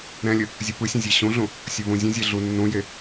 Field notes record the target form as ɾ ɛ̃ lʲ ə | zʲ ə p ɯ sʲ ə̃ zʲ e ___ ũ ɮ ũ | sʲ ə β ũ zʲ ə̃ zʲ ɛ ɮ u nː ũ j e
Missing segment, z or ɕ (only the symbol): ɕ